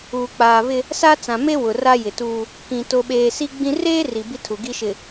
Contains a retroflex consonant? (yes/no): no